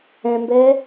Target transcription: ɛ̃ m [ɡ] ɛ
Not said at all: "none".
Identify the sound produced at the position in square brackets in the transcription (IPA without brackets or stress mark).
b